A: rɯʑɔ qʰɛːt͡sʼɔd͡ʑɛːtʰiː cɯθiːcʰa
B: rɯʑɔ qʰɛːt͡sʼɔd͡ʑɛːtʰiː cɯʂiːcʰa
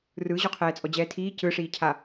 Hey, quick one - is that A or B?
B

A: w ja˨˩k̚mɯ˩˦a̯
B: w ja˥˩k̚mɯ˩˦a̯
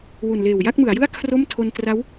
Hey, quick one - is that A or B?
B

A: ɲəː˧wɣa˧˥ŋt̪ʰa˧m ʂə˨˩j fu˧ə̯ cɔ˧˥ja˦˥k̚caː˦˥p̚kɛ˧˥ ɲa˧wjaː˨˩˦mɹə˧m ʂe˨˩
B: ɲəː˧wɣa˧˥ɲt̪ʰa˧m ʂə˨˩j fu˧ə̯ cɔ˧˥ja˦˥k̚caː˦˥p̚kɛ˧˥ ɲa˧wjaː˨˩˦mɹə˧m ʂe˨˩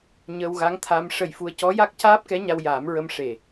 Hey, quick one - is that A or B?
A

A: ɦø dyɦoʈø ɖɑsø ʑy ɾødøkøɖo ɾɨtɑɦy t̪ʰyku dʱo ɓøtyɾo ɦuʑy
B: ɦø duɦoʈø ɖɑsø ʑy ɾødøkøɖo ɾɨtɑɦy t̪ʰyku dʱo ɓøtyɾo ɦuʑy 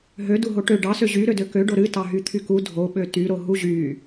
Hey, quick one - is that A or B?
B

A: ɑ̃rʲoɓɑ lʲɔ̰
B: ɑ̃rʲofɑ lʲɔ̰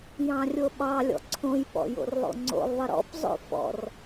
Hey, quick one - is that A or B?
A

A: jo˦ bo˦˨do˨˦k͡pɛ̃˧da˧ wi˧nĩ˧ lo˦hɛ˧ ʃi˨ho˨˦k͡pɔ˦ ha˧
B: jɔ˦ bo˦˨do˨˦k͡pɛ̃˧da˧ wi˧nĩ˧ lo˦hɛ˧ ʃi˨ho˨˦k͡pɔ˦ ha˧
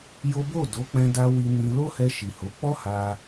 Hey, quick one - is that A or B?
A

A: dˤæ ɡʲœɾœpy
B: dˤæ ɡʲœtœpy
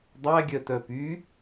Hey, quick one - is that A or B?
B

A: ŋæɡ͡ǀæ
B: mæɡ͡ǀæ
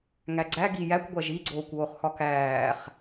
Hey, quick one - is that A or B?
A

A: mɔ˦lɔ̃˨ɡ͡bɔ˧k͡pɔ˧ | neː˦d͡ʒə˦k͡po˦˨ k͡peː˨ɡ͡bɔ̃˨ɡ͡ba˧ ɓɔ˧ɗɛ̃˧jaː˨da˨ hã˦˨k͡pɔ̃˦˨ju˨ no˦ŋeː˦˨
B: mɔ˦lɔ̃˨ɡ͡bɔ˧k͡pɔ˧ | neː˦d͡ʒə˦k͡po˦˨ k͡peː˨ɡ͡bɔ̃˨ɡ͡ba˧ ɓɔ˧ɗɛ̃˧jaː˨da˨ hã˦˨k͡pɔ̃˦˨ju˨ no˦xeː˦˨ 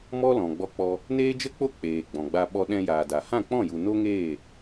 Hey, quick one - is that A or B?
A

